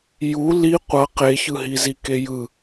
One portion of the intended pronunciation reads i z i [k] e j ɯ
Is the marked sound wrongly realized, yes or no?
no